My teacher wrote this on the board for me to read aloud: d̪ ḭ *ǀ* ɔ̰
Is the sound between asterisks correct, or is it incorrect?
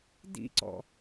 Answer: correct